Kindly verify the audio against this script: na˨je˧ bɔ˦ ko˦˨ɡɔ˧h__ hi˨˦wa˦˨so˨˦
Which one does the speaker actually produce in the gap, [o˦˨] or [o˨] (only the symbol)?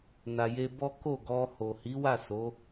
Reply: o˨